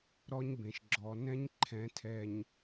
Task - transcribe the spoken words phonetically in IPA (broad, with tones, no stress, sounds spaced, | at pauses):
ɾ ɔ˦ ɲ b ẽ˨ ʃ ɡ͡ǁ ɔ˨ n ɛ̃˦ ɲ ǃʰ ɛ̃˨˦ tʰ ɛ˨ ɲ